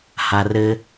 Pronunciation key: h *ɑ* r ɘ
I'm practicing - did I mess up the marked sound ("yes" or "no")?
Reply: yes